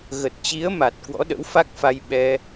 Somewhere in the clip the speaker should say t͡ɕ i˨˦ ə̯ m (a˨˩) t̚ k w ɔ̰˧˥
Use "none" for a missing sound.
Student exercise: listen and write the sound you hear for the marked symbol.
a˨˩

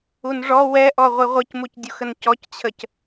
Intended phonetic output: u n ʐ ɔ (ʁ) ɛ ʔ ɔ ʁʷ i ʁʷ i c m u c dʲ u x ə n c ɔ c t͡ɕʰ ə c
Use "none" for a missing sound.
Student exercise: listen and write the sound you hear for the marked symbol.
w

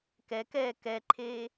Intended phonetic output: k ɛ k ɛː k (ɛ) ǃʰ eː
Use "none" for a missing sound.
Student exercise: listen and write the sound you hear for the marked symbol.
ɛ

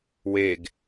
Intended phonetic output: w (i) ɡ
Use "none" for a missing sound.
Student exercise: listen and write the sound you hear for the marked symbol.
e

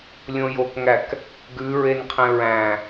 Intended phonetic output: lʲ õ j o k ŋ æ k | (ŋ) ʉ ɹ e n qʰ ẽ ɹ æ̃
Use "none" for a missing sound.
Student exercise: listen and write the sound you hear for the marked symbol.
ɡ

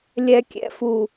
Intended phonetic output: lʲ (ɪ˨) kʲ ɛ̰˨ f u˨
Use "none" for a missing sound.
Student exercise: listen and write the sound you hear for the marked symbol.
ɛ˨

